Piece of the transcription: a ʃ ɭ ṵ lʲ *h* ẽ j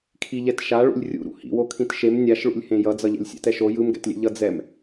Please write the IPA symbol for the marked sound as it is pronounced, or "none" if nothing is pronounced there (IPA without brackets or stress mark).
h